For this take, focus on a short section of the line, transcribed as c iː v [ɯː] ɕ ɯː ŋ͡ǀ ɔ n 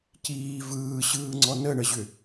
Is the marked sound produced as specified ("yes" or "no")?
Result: yes